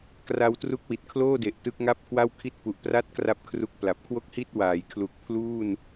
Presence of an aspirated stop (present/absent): present